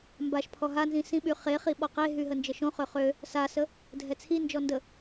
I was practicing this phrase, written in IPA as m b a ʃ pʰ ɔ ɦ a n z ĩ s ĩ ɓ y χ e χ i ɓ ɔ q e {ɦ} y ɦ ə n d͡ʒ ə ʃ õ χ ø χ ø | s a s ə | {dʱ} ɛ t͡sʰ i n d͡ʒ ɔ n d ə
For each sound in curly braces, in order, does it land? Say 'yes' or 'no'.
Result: yes, yes

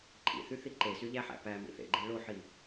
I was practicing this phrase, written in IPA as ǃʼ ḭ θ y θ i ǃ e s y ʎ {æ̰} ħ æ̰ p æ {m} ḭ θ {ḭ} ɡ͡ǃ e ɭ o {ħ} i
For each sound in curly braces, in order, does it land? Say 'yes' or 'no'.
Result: no, yes, no, yes

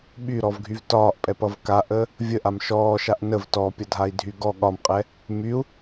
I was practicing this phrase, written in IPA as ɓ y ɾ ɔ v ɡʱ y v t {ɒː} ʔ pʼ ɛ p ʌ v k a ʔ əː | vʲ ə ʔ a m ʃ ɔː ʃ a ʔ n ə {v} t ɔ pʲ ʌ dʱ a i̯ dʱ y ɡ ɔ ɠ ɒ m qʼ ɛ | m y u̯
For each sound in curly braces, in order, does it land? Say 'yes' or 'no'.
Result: yes, yes

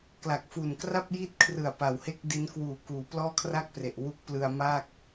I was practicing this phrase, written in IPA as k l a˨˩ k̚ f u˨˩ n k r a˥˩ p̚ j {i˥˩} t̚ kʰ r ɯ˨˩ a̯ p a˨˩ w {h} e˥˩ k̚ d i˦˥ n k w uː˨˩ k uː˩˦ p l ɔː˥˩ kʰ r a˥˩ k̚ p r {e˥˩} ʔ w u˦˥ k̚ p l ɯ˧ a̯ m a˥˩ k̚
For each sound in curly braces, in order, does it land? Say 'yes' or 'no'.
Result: no, yes, no

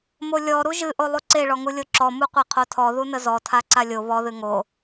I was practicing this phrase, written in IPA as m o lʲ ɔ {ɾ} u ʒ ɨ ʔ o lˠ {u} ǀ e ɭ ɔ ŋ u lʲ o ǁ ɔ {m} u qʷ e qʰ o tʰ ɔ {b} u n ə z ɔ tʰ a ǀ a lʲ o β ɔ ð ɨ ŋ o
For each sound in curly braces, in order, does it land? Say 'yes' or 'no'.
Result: yes, yes, yes, no

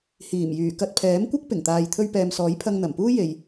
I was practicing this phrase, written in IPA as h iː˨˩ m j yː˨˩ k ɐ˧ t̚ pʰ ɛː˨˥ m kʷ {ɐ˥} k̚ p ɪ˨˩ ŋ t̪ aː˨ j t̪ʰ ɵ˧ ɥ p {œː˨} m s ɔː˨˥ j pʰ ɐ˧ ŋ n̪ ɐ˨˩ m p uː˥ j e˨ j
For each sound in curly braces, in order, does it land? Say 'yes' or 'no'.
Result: yes, no

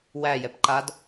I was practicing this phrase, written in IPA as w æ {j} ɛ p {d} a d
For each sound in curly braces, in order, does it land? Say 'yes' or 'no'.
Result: yes, no

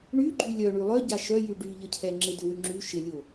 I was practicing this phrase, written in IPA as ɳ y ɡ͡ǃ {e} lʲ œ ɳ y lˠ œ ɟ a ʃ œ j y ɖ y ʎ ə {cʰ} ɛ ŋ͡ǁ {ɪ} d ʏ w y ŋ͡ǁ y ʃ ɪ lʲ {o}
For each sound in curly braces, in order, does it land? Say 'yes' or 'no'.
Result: no, yes, yes, yes

